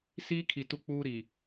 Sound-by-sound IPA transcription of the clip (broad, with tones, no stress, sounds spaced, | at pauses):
s iː˦ kʰ i˨ t u˦ k͡p uː˦ ɾ i˨